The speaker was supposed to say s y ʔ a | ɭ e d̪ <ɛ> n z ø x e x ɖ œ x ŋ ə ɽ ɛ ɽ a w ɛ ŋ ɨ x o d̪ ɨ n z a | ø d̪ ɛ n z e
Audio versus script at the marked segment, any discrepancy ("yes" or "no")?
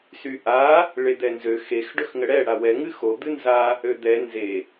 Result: no